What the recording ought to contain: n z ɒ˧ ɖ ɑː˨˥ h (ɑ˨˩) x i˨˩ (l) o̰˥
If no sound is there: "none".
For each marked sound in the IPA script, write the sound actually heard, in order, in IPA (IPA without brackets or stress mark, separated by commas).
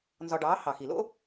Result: ɑ˨˩, l